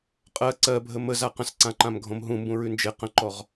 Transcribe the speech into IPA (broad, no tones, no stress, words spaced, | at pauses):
qʼɜ ǀɜbʱə məza qə̃sǀãǃãmɡʱõm ɦũmbũɹʉ nd͡ʒe qə̃ǃɔʁ